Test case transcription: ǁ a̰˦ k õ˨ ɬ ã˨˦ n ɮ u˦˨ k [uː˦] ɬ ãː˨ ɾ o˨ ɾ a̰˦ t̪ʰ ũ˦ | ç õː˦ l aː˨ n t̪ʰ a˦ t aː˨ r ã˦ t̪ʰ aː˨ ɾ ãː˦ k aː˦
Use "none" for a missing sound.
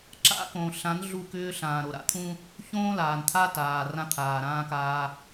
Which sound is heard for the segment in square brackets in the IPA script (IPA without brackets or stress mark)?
ʏː˦